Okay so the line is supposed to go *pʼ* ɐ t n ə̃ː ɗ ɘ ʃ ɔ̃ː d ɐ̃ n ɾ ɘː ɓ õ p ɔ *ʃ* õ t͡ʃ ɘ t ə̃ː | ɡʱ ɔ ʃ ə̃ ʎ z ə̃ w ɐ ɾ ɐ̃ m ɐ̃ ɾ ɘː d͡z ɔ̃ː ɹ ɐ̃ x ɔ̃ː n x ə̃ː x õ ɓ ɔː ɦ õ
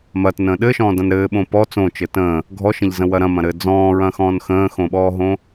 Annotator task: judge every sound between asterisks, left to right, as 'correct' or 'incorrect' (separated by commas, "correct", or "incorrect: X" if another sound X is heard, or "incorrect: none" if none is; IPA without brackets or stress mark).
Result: incorrect: m, incorrect: t͡s